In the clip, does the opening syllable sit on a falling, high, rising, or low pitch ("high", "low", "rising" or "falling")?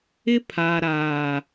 high